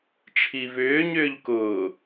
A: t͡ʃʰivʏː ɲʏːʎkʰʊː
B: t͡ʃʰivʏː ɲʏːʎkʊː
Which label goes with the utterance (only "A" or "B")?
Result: B